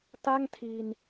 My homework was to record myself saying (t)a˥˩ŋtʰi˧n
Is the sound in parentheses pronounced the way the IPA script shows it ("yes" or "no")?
yes